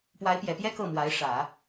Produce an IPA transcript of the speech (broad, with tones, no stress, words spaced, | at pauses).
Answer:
pwa˧˥ɪ̯pjɛ˨˩pjɛ˥ kɤ˥˩mwa˧˥ɪ̯ ʂä˨˩˦